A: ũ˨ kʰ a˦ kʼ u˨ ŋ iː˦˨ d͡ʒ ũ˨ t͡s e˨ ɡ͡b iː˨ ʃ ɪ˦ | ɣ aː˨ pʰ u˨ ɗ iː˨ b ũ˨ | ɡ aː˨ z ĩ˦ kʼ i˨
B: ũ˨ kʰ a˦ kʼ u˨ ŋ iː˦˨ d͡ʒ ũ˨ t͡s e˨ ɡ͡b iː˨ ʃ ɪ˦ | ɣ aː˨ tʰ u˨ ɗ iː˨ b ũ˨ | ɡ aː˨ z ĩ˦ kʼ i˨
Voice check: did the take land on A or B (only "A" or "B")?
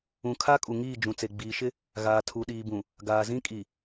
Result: B